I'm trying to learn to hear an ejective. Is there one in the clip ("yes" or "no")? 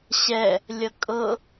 yes